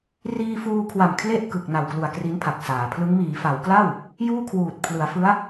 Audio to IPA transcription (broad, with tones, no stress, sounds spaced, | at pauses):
r iː˧ f uː˧ kʰ w a˨˩ m kʰ l e˥˩ ʔ k ɯ˨˩ k̚ n a˨˩ w k l u˨˩ a̯ k r i˦˥ n pʰ a˨˩ k̚ s aː˩˦ pʰ l ɯ˦˥ ŋ m iː˩˦ f a˩˦ w k l a˥˩ w | j uː˥˩ kʰ w uː˨˩ t̚ pʰ l ɯ˩˦ a̯ f ɯ˦˥ a̯